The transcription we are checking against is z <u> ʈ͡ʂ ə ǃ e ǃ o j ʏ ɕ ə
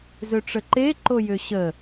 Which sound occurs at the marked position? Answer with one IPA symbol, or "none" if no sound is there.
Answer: ø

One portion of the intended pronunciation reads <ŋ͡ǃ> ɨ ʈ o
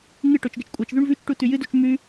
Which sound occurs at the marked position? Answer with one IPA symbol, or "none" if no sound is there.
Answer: ŋ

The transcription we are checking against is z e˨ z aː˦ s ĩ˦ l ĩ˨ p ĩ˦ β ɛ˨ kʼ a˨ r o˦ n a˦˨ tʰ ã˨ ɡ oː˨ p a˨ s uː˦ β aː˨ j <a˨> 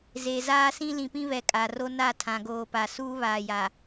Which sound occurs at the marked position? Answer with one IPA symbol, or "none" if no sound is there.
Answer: a˨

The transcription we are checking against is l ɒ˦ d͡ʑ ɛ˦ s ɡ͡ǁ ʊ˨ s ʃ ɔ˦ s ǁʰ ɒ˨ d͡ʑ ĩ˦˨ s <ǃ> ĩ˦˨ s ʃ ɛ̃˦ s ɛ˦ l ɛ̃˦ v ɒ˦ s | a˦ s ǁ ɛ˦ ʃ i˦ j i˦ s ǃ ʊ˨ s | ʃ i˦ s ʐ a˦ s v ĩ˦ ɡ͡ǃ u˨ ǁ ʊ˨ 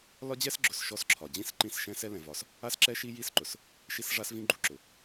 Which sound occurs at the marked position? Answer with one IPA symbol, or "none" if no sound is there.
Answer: ǃ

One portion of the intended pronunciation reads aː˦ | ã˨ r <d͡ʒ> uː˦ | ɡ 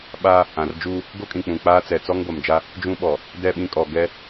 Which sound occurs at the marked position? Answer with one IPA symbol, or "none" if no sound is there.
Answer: d͡ʒ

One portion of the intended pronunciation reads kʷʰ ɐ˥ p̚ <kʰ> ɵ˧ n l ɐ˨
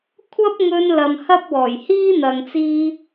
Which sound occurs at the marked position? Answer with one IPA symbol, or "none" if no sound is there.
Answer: ŋ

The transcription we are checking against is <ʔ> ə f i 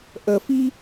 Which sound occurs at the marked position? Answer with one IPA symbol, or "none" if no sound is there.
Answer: ʔ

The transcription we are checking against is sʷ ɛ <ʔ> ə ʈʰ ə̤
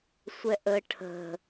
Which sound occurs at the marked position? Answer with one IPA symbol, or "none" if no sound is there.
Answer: ʔ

